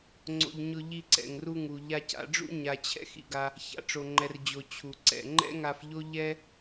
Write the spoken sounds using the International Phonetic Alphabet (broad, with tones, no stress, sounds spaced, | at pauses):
ŋ͡ǀ o̰˧ ʎ ɲ ʊ˧ ʎ i˧ ǀ ɛ̰˩ ŋ r u˧ ŋ u˩ ʎ a˧ c a̰˧ ɖ͡ʐ ṵ˥ ɲ a˧ t͡ɕʰ ɛ̰˥ x ḭ˧ ɡ a˧ | ç a̰˩ ʈ͡ʂ o˩ ŋ͡ǃ ɛ˩ r d͡ʑ o˩ t͡ɕʰ u˩ ǀ ɛ̰˩ ŋ͡ǃ ɛ̰˥ ŋ a˧ f ʎ o˥ ʎ ɛ˥